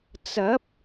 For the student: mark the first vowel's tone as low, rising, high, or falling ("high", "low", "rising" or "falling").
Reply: rising